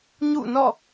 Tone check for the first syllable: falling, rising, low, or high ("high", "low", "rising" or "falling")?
falling